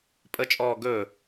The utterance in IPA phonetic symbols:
pʼ ə t͡ʃʼ ɔː ɡ ɵ

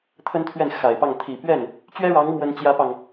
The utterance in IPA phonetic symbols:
t̪ʰ ə˥ n t̪ʰ ɥ ɛ˥˩ n x a˨˩ ɪ̯ p ɑ˥˩ ŋ t̪ʰ i˨˩ p ɥ ɛ˥˩ n | t͡ɕ ɥ ɛ˥ ɻ ɑ˧˥ ŋ m w ə˥ n t͡ɕ j ä˥ p ɑ˨ ŋ

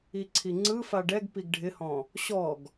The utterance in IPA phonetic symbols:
i ǀʰ i ŋ͡ǀ ɯ f a ɖ ɛ ɡ p i ɡ ɖʱ ɪ h ɔ̃ | ɕ ɔ ɡ

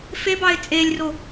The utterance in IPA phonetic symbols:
f e b ɑ ɪ̯ t͡sʼ e lʲ r o

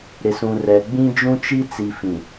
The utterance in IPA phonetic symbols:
ɾ ɪ˨ s ũ˨ r ɛ˨ ɡ͡b ĩ˦ d͡ʒ ũ˦ t͡ʃ i˦ t͡s i˨ f ĩ˨

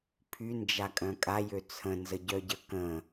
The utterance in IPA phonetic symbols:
pʰ y n d͡ʒ a kʼ œ̃ kʼ a j ø t͡sʰ ə̃ n z ə ɟ œ ɟ ə k ə̃

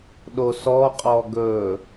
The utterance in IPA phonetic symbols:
ɗ o s ɔ qʼ ɔ ɡ ɵ

